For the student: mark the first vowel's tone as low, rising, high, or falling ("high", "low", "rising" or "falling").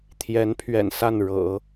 rising